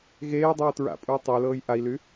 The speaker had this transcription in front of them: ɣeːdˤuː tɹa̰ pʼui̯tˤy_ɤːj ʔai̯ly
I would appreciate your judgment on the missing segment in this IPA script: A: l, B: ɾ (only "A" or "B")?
A